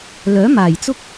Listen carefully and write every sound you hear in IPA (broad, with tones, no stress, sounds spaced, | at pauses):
l œː˨˥ m aː˨˩ j t͡s ʊ˥ k̚